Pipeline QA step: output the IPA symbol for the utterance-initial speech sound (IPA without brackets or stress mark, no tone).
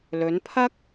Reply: l